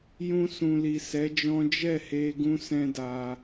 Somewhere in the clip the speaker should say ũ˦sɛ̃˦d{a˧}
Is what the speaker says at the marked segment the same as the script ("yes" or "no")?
yes